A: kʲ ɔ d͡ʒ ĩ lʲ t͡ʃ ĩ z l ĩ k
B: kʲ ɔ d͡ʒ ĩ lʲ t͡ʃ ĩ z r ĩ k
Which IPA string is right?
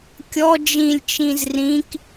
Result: B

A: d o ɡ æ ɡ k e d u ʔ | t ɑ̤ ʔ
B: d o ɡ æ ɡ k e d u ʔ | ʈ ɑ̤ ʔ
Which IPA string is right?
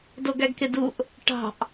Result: B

